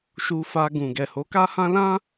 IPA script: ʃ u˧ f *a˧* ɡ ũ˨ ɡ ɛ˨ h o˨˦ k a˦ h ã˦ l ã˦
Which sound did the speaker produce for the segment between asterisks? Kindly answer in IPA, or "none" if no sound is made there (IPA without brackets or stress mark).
a˧